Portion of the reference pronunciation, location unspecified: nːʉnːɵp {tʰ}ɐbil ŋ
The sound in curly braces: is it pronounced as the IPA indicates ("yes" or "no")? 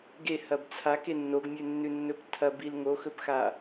yes